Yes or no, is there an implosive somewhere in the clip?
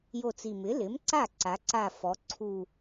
no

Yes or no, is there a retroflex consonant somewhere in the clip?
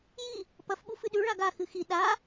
yes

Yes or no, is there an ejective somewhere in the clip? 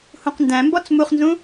no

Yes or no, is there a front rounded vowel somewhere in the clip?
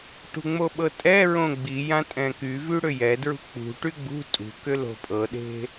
yes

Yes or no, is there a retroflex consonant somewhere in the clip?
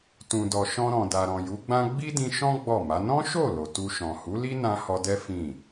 no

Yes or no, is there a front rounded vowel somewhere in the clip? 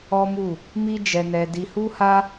no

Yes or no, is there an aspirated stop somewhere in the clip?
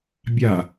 no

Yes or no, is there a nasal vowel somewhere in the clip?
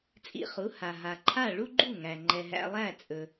no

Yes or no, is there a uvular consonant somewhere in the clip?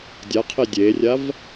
yes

